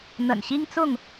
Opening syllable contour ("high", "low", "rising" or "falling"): low